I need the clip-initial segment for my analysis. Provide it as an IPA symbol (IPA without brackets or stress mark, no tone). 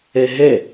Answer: ɛ